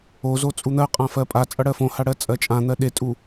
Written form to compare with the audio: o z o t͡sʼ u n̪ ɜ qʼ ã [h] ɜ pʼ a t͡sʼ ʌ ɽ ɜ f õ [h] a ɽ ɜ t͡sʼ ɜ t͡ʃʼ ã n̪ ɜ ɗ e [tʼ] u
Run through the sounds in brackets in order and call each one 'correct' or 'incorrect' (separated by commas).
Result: incorrect, correct, correct